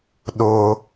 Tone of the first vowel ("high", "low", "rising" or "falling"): high